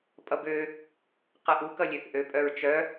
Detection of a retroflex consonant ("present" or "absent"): absent